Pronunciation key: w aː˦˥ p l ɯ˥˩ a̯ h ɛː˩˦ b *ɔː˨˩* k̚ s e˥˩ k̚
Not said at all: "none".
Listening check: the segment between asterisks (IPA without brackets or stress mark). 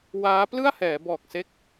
ɔː˨˩